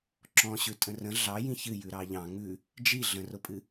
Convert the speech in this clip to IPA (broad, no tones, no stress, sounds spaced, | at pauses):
ǁ ɔ̃ ɕ ʉ tʼ ə̃ r ə̃ ɮ ɑ j ĩ ç ɨ j ʉ ɾ ɑ ʎ ɑ̃ ŋ ʉ | d͡ʒ i ɮ ə̃ r ʊ pʼ ɨ